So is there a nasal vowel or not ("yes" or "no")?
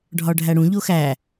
yes